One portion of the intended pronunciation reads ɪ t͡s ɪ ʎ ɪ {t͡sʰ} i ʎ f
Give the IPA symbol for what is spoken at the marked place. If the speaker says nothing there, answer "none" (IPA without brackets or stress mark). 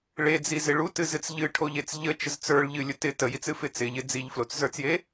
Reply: d͡z